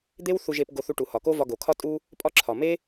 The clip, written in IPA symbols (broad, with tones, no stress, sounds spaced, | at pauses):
d̪ e˦ w θ u˧ ʒ e˧ p ɡ o˧ θ u˧ ʈ u˨ h ɒ˨ k o˦ v ɒ˧ ɡ o˨ kʰ ɒ˦ tʼ u˦ | pʼ ɒ˦ ǁʰ ɒ˨ m e˦